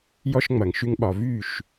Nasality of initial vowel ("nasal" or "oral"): oral